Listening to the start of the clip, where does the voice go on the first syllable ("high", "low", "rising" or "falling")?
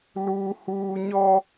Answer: high